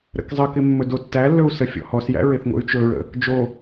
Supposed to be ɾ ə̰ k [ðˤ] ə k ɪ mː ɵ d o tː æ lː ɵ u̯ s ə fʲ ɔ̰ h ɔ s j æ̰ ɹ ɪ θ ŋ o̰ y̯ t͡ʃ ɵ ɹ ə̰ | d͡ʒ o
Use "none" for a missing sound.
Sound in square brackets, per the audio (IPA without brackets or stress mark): zˤ